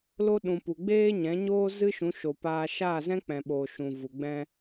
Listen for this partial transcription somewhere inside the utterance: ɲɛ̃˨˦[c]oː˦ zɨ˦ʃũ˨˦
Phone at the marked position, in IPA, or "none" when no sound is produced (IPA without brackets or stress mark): ɲ